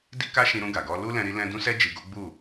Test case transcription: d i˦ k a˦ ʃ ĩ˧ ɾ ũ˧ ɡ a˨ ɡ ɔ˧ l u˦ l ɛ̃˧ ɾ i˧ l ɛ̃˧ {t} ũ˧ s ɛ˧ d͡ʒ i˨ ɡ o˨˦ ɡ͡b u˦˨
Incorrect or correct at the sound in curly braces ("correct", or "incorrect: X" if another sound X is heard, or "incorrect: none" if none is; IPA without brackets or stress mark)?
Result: incorrect: d